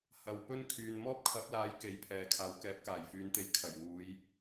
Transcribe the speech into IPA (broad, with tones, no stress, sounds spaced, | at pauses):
h ɐ˨ w p ɵ˥ n kʰ yː˨ n m ɔː˥ p̚ kʰ ɐ˨˥ p̚ l aː˨˥ j k e˨˥ j pʰ ɛː˨ kʰ aː˨˧ w k ɛː˨˥ p̚ k aː˨˩ j f yː˨˧ n t̪ e˧ j kʰ ɐ˨˩ j w uː˨˧ j